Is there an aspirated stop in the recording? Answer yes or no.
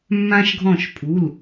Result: yes